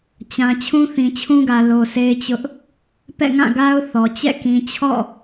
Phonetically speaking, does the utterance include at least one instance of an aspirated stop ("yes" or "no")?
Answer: yes